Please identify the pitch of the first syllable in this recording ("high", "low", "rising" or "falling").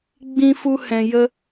high